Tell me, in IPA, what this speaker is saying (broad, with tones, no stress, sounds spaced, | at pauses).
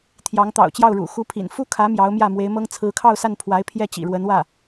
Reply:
t̪ʰ j ɑ˧˥ ŋ t̪ ɑ̰˨˩ ʊ̯ t͡ɕ j ɑ˥˩ ʊ̯ ɻ ṵ˨˩ x u˧˥ pʰ ḭ˨˩ n f u˥ kʰ ä˧˥ m j ɑ˧˥ ʊ̯ m j ä˥˩ m w e˧˥ ɪ̯ m ɤ˥ ŋ t͡sʰ ɹ̩˧˥ kʰ ɑ˥˧ ʊ̯ s a˥˩ n pʰ w a˧˥ ɪ̯ pʰ j ɛ˥˩ t͡ɕ ḭ˨˩ ɻ w ə˧˥ n w ä˥˩